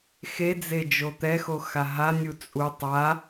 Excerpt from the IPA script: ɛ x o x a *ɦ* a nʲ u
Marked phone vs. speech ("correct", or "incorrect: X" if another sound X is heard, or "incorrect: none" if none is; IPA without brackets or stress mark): correct